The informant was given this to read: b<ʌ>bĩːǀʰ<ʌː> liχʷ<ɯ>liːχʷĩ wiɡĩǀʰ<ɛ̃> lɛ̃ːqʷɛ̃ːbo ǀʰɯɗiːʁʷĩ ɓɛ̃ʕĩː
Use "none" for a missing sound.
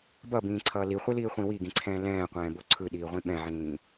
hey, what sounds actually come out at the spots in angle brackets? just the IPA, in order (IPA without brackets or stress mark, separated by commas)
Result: ʌ, ʌː, ɯ, ɛ̃ː